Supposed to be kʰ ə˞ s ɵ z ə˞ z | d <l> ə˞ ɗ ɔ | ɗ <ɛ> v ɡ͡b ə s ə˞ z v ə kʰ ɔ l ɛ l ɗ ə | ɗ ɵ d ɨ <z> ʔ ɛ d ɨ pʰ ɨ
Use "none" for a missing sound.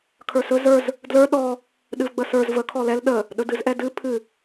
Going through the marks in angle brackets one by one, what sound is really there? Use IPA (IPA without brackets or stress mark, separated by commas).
l, ɨ, z